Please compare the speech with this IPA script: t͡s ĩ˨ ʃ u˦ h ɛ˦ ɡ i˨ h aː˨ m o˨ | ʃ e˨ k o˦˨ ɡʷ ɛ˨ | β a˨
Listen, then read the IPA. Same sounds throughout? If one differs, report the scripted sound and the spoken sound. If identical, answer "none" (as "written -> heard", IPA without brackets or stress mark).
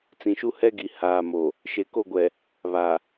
none